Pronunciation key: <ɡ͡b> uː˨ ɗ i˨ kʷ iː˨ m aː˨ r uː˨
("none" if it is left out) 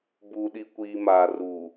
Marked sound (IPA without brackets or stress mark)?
b